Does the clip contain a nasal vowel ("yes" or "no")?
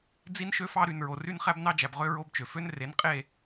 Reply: no